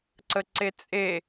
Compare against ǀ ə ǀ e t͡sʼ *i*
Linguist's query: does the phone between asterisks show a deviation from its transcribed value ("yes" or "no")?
yes